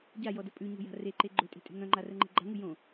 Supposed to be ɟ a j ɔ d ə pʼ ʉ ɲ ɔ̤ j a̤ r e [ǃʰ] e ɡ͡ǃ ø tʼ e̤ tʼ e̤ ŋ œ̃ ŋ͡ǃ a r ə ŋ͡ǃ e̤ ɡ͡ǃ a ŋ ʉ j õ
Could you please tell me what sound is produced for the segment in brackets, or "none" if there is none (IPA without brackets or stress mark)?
ǃ